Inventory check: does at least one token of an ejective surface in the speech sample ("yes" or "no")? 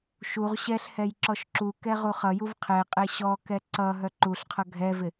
yes